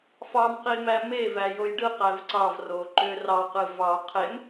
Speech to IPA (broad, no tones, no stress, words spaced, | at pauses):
fɑmqimæ mevæjoj ɖɯqæv ǀɑvroǃø rɑqɯ vɑ qʰem